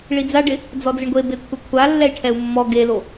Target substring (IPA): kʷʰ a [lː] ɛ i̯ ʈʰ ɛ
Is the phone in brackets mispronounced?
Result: no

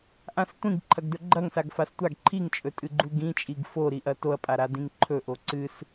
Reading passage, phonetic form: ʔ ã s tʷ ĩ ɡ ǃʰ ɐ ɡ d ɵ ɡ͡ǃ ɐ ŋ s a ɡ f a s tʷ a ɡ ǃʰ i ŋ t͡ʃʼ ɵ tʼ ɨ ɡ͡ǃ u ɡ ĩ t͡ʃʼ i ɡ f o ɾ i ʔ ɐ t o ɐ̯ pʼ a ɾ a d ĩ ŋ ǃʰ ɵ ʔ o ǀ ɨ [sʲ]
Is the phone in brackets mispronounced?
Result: yes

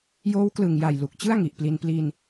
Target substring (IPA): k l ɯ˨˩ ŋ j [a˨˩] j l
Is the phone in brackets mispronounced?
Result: no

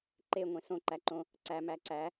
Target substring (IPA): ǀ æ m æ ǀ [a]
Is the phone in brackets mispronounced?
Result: yes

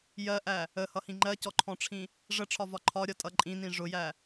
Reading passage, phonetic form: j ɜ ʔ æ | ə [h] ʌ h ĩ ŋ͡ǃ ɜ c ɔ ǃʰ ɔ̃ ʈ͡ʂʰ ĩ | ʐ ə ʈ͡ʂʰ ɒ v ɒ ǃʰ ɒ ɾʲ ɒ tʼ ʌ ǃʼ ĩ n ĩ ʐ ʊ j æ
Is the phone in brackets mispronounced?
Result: no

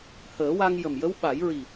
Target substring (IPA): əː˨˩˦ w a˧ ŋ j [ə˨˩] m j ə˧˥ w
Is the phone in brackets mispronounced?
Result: no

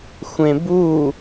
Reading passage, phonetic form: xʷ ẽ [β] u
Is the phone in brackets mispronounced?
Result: yes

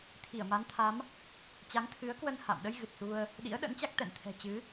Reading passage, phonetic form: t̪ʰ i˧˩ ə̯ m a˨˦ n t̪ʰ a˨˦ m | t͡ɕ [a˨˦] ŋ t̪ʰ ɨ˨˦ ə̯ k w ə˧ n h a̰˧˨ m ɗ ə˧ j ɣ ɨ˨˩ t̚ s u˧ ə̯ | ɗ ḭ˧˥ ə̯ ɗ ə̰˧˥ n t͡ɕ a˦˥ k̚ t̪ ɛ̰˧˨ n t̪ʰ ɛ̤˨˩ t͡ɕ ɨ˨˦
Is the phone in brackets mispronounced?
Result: no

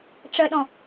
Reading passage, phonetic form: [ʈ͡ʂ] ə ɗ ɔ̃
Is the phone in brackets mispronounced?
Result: no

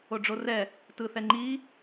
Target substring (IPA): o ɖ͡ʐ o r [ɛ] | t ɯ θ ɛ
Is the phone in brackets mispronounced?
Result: no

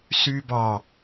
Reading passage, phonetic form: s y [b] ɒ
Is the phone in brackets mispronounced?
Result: no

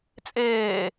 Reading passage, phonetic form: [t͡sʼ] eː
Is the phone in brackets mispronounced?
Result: no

